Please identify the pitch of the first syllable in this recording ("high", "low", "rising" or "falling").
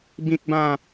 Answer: high